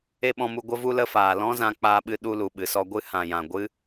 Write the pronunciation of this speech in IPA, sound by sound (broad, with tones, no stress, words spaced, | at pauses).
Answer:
e˧ɓɔ̃˧mu˧ ɡʷə˧vu˧lə˧faː˨ lɔ̃˦zã˧k͡paː˧ɓɨ˧ ɗu˧lu˨ɓɨ˨sɔ˧ ɡʷɨ˧hã˨jã˨ ɡʷɨ˦